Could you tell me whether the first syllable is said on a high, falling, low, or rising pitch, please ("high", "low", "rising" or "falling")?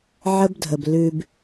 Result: high